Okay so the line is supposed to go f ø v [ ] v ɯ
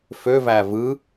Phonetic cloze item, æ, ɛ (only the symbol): æ